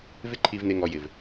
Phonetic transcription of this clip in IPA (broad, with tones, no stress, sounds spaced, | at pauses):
v ɪ˦ ǃʰ i˧ v n̪ e˧ ŋ ɔ˨ j ɪ˨ v